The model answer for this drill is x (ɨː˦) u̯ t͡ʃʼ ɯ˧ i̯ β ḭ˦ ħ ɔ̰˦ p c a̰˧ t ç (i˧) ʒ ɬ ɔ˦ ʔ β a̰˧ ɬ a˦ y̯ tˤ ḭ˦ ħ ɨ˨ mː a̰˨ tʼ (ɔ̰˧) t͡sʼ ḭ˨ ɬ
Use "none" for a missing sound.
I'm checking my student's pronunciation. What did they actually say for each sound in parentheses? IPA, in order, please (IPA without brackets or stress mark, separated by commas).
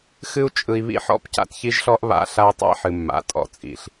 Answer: ɨ˦, i˦, ɔ̰˧